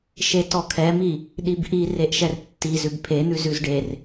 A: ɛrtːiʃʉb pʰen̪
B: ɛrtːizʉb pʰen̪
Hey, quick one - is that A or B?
B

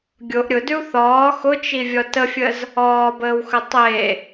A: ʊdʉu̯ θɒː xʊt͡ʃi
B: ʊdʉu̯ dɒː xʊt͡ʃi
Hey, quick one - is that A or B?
A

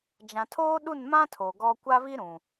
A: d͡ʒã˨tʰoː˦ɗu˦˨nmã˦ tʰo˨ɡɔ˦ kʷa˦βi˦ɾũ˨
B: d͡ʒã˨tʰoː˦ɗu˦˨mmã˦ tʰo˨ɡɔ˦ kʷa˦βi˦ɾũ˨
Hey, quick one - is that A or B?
A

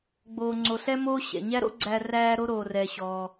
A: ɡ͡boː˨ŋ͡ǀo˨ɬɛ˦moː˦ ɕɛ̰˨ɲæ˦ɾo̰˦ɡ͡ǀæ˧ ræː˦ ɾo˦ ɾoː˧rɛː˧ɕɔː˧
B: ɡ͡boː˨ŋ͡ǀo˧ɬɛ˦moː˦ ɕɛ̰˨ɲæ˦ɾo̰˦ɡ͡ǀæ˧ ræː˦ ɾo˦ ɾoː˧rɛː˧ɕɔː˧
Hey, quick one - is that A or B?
A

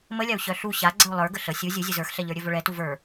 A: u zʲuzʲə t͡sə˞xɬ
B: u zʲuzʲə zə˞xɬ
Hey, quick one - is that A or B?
B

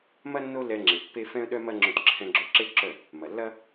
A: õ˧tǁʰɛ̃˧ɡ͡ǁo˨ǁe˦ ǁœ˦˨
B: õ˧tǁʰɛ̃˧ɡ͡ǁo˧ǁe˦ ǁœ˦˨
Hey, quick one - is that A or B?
B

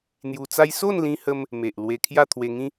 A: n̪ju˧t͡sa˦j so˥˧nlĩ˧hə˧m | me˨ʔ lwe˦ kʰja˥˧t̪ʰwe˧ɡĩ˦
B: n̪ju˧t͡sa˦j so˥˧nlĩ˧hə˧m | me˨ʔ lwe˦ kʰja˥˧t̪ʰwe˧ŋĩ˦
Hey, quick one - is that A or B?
B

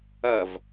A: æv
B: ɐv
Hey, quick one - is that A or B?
B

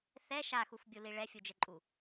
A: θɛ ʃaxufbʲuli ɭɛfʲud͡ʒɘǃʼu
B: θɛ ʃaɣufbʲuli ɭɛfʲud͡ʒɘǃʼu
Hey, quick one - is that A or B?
A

